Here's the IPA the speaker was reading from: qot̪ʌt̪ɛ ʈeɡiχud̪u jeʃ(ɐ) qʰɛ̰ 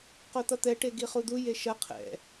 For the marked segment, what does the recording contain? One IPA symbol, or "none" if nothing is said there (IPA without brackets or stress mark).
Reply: ɐ